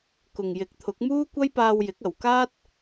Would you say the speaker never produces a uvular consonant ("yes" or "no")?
yes